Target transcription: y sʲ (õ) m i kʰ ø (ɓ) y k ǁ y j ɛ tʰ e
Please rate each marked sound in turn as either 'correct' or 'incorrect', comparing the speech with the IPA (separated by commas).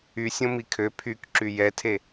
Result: correct, incorrect